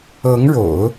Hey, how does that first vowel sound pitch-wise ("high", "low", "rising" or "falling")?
rising